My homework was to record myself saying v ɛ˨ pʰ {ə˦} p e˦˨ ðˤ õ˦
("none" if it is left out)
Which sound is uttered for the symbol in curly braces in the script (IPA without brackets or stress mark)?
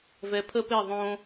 ə˦